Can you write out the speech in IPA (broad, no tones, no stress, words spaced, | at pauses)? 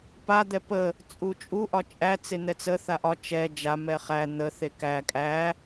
pa d̪ɛpə | t͡sʼut͡ʃʼu ʔɒt͡ʃʼæ t͡sen̪ɛt͡sə θaʔɒ t͡ʃɛ d͡ʒa mɛχæ n̪ə θekæ kʼæ